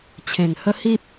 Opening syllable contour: low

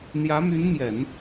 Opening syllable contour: rising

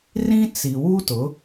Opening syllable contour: high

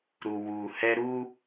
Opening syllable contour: low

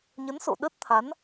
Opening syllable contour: rising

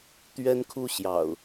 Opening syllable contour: high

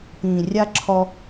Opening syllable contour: low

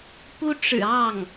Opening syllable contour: high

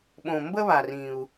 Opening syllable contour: low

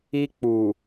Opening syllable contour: high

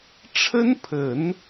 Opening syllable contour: high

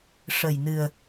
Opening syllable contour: low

